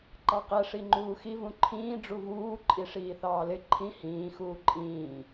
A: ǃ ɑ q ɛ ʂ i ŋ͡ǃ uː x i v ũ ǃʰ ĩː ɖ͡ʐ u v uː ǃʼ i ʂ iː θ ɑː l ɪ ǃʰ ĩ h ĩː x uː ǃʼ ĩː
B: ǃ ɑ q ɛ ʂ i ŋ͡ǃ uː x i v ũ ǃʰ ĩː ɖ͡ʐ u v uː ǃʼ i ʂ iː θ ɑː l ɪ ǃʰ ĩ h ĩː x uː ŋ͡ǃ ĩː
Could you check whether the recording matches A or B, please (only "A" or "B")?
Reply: A